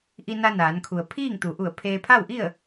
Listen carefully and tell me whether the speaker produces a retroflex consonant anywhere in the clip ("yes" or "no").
no